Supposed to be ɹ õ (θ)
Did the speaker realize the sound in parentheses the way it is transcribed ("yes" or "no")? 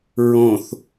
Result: yes